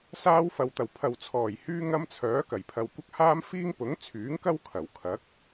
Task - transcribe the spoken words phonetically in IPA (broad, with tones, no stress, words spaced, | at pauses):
saː˥wfɐ˨wt̪ɐ˨˩w pʰɐ˨wt͡sʰɔː˨˩j hyː˥ŋɐ˥mt͡sʰœː˨˥ kɐ˨˩jpʰɐ˨w kʷɐ˥k̚ haː˥mfiː˥ŋ pʊ˨˥ŋt͡sʰyː˨˥ŋkɐ˥w kʰɐ˨˩wkʰɐ˨˥k̚